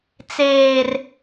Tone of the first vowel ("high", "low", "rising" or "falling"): low